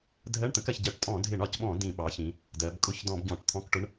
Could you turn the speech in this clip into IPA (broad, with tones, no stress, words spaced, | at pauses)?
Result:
dʱɜ˧˥˧ɳt̪ə̃˩˥kɜ˩˧çɟɜ˧˩˧ʈ tʼɔ̃˧˩˧dʱɪ˧˩˧ɳɒ˧˩˧cɓɔ̃˧˩˧ dĩ˧˩˧ɓɑ˩˥çĩ˩˧ | dɜ˩˧b kʼʊ˧˩˧çdɔ̃˧˩˧b ɟɔ̃˧˩˧ʈt̪ʰɔ̃˧˥˧kʈʊ˧˥˧ɳ